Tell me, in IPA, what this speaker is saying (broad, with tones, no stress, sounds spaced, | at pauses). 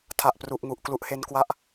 tʰ a˨˩ ʔ p r u˨˩ ʔ ŋ u˨˩ ʔ k l u˦˥ ʔ h e˦˥ n k w a˥˩ ʔ